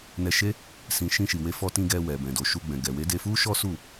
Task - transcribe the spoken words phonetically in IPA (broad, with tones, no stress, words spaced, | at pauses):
nɛ˧ʃe˦ | sĩ˧ ʃĩ˧ʃi˨we˧ fɔ˧tĩ˧ ɡɛ˧wɛ˨bɛ̃˨ do˨ ʃu˧ɡ͡bɛ̃˨ ɡɛ˨we˨˦de˧fu˦ ʃɔ˦su˦˨